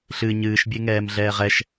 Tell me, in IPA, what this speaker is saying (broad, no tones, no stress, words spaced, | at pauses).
ɬɨ ɲɨːʃbʲeŋɛːmɮɛːʁ ɛʃ